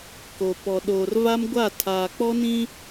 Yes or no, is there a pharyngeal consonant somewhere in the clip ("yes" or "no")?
no